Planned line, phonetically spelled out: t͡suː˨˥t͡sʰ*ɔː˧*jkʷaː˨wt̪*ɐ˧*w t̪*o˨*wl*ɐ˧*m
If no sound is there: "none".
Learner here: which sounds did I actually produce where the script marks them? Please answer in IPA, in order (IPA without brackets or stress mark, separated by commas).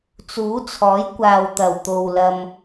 ɔː˨˥, ɐ˨˩, o˨, ɐ˧